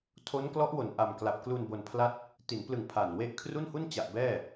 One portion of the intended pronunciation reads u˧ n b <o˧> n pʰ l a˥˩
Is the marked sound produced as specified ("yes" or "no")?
yes